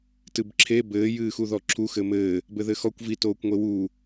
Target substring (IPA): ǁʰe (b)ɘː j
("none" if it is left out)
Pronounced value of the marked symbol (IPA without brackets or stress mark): b